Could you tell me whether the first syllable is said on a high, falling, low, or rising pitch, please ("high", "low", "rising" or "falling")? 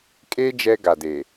high